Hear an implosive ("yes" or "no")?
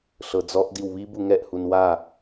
no